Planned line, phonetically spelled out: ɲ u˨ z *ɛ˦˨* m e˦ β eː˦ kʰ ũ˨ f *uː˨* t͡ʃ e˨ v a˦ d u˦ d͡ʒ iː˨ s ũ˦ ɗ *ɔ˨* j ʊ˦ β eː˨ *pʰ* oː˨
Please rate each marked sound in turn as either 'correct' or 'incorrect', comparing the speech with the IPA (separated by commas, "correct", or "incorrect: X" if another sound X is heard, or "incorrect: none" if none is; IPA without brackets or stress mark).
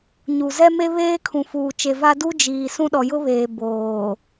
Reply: incorrect: ɛ˦, correct, correct, incorrect: b